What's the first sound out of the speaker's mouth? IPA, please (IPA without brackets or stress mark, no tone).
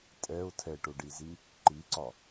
tʼ